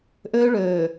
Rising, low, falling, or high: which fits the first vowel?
high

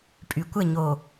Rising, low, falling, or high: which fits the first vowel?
low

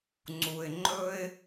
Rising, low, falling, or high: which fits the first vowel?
low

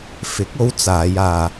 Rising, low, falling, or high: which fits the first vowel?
rising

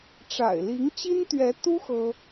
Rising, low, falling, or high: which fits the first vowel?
low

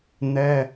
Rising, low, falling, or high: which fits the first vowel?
high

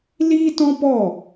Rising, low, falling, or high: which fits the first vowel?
high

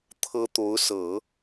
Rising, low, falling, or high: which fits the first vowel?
high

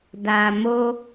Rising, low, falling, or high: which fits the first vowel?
low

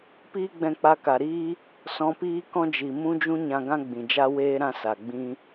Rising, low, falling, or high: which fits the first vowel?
high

